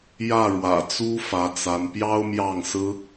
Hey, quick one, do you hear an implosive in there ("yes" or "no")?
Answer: no